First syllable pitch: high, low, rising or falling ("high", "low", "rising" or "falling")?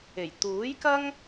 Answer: low